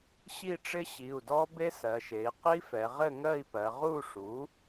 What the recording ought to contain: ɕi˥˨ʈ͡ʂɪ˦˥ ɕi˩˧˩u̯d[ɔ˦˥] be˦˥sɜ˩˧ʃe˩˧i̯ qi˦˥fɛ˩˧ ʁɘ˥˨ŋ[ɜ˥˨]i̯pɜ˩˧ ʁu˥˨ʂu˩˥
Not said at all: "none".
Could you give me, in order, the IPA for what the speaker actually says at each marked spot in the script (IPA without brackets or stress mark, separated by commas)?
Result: ɔ˦˥, ɜ˥˨